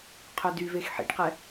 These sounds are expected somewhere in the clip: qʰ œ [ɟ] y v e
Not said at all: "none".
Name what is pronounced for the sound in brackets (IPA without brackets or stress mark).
d